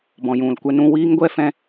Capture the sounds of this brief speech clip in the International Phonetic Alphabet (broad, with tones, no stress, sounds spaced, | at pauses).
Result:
b ɔ̃˨ j ũ˨ l kʷ ɛ˧ n ũ˧ w iː˦ ŋ ɡʷ ɛ˦ f ɛ̃˦